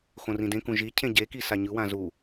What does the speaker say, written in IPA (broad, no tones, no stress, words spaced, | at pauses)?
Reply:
xõrĩdẽkũ ʒi cʰẽɟeki saɲɯwã zu